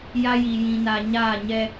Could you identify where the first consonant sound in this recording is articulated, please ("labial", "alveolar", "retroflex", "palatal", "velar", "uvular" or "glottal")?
palatal